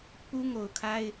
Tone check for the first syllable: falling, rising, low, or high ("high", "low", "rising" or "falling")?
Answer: high